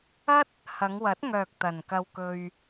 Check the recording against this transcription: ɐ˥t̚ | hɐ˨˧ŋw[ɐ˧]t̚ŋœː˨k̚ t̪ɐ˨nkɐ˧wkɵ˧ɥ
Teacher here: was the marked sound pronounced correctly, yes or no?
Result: no